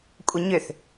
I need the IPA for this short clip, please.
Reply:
kʷʼ ə ɲ ʏ θ

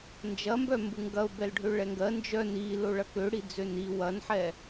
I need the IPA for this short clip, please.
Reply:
n d͡ʒ ɐ m b œ m b u ŋ ɡ ɐ ʊ̯ b ɛ l ɖʱ ø ɭ ɛ ŋ ɡ ɜ n d͡ʒ œ n i l o ɭ ɐ k ø ɽ i d͡z ø n i w ɐ n ħ ɛ

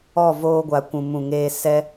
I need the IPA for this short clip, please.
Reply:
ɔ˦˨ v oː˧ ɡʷ a˨ kʷ ũ˨ m ũ˨ ŋ eː˧ s ɛ˧

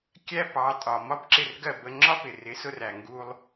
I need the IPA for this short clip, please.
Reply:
kʲ æ˥ p ɑ˩˥ tʼ ɒ˩ m ɒ˥ b ǁ ɪ˥˩ r ɡ ɜ˥˩ b ə˧ ŋ͡ǁ ɒ˥ p ɪ˩ r ɪ˩˥ s ʊ˧ r æ˩ ŋ ɡ u˧ lˠ

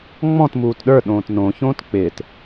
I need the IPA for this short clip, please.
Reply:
ŋ͡m ɔ̃ t m uː t ɗ ə˞ ɗ õː t n õ ç õː t k͡p ɪː t

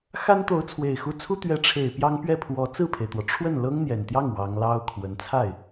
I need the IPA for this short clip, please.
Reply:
x a˥ n t̪ o˧˥ ʊ̯ t͡sʰ w e˨˩ ɪ̯ x u˧˥ t͡sʰ u˥ t̪ ɥ ɛ˧˥ ʈ͡ʂʰ e˨˩ ɪ̯ p j ɑ˥ ŋ p ɥ ɛ˥˩ pʰ w ɔ˧˥ t͡s ɹ̩˥˩ pʰ e˩ ɪ̯ t̪ w ɔ˩ ʈ͡ʂʰ w ə˥˩ n l ɤ˥ ŋ n̪ j ɛ˨˩ n t̪ j ɑ˥˩ ŋ w ɑ˧˥ ŋ l ɑ˥ ʊ̯ kʰ w ə˧˥ n t͡sʰ a˥˩ ɪ̯

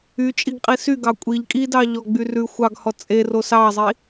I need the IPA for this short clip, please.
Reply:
y t͡ʃʼ i ɡ qʼ i s y ɡ ɑ kʷʼ i ʎ kʼ i d ɑ ʎ ɔ ɡ͡b y r ʉ xʷ ɑ ɡ h ɔ t͡sʼ e r o s ɑ zˤ i

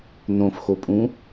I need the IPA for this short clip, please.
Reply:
n õ f x o pʼ ũ

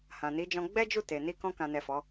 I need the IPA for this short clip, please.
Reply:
h ã˨ n i˨˦ d͡ʒ ɔ̃˧ ɡ͡b ɛ˦ d͡ʒ u˦˨ t e˨ n i˧ k ɔ̃˧ k ã˨ n ɛ˨ f ɔ˨˦

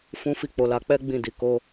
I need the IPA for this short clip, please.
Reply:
f ũ˦ f i˦˨ k͡p o˧ l a˧ k͡p ɛ˦ ɡ͡b ĩ˦˨ d i˧ k o˧

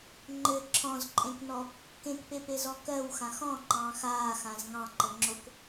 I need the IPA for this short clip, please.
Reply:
ŋ͡ǃ ɘ ǁʰ ɔ̃ z ǃʼ ẽ k n ɔ | k ẽ k p e p e z ɔ k ɜ w x ã x ɔ̃ ŋ͡ǃ ɑ̃ː x aː x ã z ŋ ɑ̃ ǃ ə ŋ͡ǁ o k

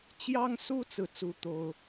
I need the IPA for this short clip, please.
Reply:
t͡ɕ j ɑ˥ ŋ s u˥ t͡s ɹ̩˥˩ t͡s u˥ t̪ o˥ ʊ̯

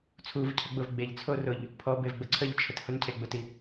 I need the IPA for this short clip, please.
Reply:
t͡sʰ u v cʰ ə ɡ͡b ʊ v ɡ͡b e ʎ t͡sʰ o r ʊ ʎ | pʰ ɔ b e v ɡ͡b ə ǀʰ ə ʎ t͡ʃʰ ə t h ʊ n cʰ e ɡ͡b ʊ t i

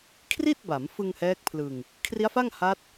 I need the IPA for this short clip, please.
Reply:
kʰ r i˥˩ t̚ b a˩˦ m f ɯ˧ ŋ h ɛː˦˥ k̚ pʰ l ɯ˧ ŋ | kʰ r i˦˥ a̯ f a˥˩ ŋ h a˦˥ t̚

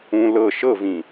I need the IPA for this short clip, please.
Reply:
ũ l ɤ ʃ ɤ v ĩ

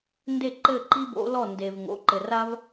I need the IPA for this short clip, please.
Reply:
n d e˥˩ ǃ ɘ˥˩ ǃ i˥ b o̰˩˥ l ɔ˥˩ n d e˩ v ŋ o̰˩˥ ǃ ɘ˩ r a˥ v

